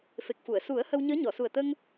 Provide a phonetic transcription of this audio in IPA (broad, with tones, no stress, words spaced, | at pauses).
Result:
fe˨˩k̚fu˨˩˨ə̯ su˨˩˦ə̯ hə˧wɲəː˧˥ɲɔ˨˩˨ su˨˩ə̯t̪ə˧ŋ